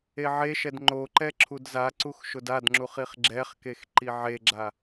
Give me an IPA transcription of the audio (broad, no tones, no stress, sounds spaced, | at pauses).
e ʕ e ʃ ɛ d ŋ͡ǃ o ǃ ɛ ǁʰ u d z a ǀ u x ʃ ʊ d a d ŋ͡ǁ u χ i χ ɡ͡ǁ ɛ χ k e x ǃ i ʕ e ɡ͡ǁ a